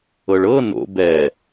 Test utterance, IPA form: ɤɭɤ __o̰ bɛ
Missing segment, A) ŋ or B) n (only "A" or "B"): B